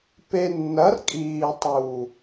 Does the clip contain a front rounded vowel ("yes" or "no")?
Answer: no